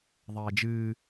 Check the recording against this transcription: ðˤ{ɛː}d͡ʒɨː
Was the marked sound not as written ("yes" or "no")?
no